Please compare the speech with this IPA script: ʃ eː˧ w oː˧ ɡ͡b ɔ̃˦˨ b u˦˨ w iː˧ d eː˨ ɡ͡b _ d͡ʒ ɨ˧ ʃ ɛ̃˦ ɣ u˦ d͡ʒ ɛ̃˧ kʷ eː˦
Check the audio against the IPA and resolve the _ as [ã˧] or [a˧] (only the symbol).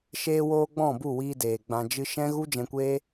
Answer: ã˧